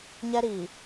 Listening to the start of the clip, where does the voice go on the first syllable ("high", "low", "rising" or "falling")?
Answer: high